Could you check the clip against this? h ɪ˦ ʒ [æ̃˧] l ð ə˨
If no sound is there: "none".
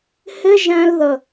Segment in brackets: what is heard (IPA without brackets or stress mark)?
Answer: æ̃˧